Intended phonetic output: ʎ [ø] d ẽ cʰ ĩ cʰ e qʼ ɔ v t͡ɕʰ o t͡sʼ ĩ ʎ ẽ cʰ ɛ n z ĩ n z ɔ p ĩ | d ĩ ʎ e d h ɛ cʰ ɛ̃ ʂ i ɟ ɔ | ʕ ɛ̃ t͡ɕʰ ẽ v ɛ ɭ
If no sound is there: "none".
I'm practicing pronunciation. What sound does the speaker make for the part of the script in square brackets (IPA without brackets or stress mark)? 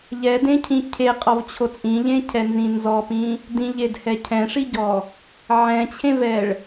ɛ